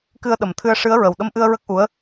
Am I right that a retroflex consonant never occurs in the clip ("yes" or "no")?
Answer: no